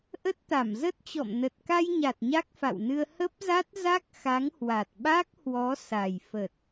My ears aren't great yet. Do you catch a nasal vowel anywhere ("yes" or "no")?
no